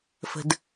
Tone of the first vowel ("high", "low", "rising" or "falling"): low